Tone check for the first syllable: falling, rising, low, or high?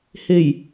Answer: low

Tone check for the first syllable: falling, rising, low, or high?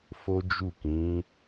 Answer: high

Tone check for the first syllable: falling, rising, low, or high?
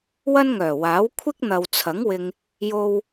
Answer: high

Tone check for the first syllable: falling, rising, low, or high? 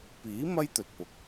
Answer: rising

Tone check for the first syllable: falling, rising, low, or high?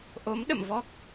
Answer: rising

